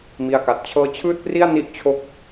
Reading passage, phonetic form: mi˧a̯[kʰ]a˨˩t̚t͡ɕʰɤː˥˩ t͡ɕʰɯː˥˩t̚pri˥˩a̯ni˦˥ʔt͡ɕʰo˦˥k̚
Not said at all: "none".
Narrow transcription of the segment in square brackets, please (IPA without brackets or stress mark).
k